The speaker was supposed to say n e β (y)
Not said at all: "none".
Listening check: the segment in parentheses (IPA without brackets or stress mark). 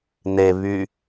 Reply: y